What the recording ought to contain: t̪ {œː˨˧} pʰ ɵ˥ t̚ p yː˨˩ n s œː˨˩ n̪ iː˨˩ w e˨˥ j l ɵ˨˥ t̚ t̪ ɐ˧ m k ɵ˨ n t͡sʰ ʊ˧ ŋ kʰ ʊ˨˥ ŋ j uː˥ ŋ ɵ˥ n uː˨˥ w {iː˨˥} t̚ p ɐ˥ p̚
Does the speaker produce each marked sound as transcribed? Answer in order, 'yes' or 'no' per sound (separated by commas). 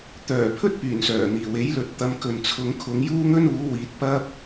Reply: no, yes